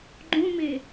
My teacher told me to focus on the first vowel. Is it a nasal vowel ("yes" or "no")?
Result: yes